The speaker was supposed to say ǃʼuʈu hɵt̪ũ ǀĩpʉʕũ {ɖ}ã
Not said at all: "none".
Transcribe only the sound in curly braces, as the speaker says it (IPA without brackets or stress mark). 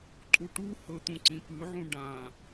ɖ